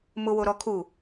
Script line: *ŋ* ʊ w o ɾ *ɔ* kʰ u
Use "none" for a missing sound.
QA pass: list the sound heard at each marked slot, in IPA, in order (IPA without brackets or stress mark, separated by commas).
m, ɔ